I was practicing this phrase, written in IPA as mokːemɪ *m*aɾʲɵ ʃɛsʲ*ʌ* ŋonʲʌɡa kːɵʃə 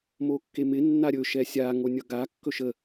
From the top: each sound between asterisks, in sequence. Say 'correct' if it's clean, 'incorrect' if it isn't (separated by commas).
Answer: incorrect, incorrect